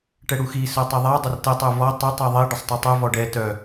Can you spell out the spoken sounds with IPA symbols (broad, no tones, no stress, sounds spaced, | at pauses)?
ʈ ɛ ɽ u x i s œ tˤ i ðˤ a dˤ ə r t ə tˤ u v ɔ tˤ i tˤ i ðˤ i ɖ ə sˤ tˤ u tˤ u v ɔ ɖ ɛ t œ